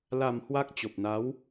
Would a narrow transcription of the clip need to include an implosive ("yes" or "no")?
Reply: no